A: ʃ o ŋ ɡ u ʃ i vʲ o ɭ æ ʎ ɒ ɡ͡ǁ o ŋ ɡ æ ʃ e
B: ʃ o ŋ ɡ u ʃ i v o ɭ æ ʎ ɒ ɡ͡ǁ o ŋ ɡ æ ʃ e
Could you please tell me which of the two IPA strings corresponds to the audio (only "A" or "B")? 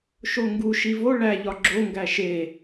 B